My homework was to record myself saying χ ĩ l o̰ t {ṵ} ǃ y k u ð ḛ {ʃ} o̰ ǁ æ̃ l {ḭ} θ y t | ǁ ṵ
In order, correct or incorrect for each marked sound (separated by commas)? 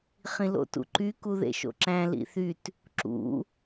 correct, correct, correct